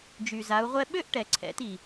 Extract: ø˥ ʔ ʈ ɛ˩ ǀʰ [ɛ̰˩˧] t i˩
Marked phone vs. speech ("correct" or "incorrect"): correct